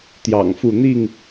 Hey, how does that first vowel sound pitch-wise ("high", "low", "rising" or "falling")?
low